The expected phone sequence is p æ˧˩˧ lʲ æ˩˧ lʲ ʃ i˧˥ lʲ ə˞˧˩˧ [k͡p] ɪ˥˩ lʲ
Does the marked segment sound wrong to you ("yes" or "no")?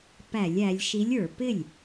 yes